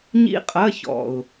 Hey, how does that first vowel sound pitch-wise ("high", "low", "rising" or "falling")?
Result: falling